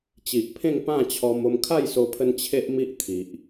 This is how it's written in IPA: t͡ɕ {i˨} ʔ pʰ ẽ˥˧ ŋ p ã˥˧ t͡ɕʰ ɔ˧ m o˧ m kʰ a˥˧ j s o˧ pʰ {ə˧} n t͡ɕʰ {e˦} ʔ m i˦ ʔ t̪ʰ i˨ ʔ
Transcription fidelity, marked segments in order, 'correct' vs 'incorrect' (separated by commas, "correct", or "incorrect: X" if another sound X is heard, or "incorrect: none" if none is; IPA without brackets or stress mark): correct, correct, correct